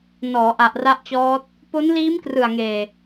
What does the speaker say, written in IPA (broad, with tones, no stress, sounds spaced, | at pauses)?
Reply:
n ɔː˩˦ ʔ a˨˩ ʔ r a˦˥ ʔ t͡ɕ ɔː˦˥ t̚ | p o˦˥ n l iː˦˥ m k r ɯ˨˩ a̯ ŋ eː˨˩